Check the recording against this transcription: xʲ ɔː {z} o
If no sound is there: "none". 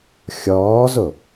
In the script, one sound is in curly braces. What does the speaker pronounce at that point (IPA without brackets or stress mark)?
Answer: z